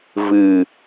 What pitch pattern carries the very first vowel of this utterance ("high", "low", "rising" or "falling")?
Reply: low